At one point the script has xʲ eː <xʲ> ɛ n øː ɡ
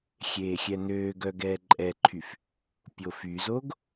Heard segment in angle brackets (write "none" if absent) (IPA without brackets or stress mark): xʲ